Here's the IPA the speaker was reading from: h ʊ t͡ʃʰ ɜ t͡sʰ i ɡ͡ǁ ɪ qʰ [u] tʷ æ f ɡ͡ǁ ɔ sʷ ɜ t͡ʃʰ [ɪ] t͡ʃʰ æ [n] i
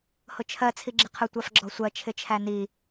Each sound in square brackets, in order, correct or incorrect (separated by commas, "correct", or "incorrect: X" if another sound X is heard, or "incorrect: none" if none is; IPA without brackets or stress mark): incorrect: ʊ, correct, correct